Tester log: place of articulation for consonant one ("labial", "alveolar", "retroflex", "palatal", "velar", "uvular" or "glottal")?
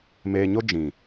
labial